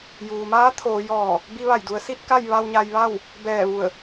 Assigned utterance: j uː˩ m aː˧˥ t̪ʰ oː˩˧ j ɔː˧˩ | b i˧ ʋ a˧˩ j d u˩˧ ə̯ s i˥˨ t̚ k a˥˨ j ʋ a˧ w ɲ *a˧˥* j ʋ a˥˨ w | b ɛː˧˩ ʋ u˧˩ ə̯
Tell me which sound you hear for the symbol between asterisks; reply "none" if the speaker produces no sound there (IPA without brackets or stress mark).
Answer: a˧